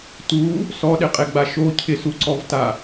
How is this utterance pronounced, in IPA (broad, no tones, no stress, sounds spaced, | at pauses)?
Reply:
t u | s ɔ ɗ ɪ qʼ e ɡ͡b a ʃ o cʰ ɪ s u ǀ ɔ v t a